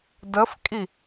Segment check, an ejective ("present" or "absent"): present